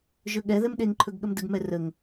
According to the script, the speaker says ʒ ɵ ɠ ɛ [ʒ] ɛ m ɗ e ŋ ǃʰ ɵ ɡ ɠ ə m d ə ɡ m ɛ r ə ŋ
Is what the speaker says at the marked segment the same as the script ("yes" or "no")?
no